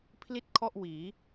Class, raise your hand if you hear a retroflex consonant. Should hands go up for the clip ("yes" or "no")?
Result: no